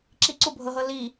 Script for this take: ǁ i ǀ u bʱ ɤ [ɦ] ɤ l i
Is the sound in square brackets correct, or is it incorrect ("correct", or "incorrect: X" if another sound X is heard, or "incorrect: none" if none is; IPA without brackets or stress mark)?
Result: correct